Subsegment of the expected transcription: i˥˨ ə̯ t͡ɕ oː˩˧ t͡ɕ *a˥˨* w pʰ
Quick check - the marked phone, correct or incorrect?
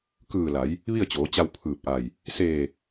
incorrect